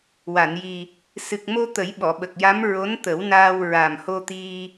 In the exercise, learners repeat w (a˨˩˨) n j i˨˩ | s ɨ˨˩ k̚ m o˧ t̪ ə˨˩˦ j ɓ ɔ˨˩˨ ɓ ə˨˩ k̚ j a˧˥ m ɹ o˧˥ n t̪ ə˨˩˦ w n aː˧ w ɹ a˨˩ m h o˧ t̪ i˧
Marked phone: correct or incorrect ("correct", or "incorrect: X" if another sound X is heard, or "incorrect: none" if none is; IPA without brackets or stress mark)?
correct